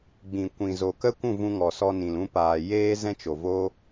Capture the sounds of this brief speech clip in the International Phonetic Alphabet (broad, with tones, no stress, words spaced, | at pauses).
ɡ͡bĩ˨ kʷĩ˨zo˨kə˦kʷũ˦˨ vũ˧ŋɔ˨sɔ˧nĩ˨l ũ˧paː˨ jeː˦ zɛ̃˦t͡ʃo˨vo˦